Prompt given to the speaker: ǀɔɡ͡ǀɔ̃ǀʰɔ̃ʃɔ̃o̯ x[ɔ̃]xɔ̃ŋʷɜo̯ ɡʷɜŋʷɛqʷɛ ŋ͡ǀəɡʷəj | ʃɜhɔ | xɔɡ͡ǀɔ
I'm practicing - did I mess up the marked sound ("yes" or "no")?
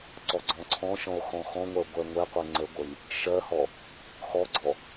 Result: no